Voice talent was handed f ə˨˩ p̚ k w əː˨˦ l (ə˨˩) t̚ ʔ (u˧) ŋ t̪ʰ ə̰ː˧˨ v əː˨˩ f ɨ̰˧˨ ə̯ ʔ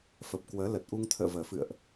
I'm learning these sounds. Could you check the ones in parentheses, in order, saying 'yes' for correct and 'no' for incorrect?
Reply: yes, yes

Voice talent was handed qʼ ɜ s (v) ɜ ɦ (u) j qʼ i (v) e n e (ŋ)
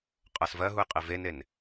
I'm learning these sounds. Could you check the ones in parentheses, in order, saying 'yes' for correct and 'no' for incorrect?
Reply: yes, yes, yes, no

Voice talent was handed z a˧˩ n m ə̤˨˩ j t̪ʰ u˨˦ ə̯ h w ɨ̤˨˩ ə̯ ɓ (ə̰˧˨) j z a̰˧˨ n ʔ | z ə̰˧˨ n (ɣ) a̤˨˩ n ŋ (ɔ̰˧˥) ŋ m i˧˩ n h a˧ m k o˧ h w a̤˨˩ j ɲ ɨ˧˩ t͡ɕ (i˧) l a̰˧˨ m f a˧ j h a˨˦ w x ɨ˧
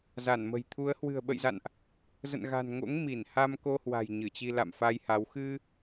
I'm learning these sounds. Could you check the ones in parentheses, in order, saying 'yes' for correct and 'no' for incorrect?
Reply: yes, yes, no, yes

